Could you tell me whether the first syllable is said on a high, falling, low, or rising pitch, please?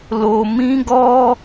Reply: low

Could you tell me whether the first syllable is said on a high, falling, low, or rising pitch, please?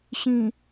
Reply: low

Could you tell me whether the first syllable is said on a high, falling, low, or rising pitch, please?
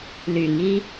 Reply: low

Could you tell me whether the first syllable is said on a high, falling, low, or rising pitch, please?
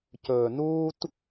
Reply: low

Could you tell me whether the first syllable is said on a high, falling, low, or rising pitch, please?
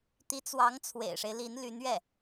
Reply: rising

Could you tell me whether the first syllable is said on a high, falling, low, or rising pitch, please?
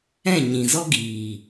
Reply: falling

